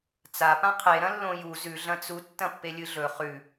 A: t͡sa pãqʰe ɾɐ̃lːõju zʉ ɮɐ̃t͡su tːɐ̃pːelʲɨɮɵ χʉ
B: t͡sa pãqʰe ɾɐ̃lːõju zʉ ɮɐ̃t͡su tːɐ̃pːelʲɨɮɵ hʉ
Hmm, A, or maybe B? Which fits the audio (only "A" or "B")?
A